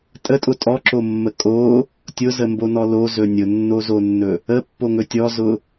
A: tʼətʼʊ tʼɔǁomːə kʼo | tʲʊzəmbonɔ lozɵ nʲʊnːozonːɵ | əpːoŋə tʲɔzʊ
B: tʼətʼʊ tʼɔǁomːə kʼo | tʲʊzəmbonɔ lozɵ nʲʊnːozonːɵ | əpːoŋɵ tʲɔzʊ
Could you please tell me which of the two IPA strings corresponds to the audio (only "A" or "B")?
B